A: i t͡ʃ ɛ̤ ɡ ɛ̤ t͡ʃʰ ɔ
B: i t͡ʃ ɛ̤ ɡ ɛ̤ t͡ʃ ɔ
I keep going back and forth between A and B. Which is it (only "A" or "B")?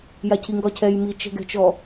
B